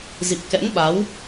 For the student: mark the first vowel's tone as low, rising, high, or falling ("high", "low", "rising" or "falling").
low